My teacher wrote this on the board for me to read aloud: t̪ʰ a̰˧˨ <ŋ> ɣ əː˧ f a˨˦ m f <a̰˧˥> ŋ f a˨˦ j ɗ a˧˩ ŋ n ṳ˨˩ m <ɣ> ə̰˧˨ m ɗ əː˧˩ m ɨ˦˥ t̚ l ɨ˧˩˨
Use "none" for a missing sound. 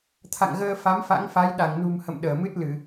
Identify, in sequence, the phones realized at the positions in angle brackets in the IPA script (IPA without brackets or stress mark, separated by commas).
ŋ, a̰˧˥, h